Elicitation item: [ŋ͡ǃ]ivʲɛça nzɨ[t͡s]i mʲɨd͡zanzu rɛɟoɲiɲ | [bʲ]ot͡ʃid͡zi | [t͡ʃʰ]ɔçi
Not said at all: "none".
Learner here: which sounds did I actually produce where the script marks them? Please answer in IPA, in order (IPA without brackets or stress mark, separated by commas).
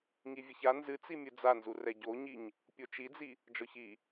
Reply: ŋ, t͡s, pʲ, d͡ʒ